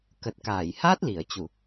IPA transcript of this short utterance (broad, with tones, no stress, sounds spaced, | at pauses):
k ə˨˩ t̚ k aː˧˩ j h a˦˥ t̚ l i˧˩ ə̯ t͡ɕ u˧˩˨